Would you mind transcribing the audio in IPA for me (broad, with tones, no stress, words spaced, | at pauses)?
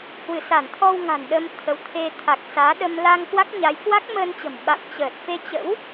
hwɨ˧˩sa˧˩nt̪ʰɔ˧w ŋa̤˨˩nɗə˧m t̪ʰə˨˦wt̪ʰe˧ t̪ʰa˨˩k̚ saː˨˦ɗə˧m la˧ŋkwa˦˥k̚ɲa˨˦j kwa˦˥k̚məː˧nt͡ɕə̤˨˩m ɓa̰˧˨mt͡ɕəː˨˩t̚fe˧t͡ɕə̰˧˥w